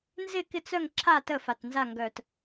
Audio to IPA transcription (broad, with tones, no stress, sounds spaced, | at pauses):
n z ɪ˦˨ k ɪ˦˨ t͡s œ˦˨ ŋ ǁʰ a˦˨ t ə˦˨ f a˨˩ t n z a˦˨ ŋ ɡ œ˨˩ t